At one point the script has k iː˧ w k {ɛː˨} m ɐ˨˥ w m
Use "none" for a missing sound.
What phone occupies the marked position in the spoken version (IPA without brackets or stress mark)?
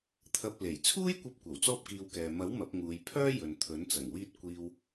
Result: ɛː˨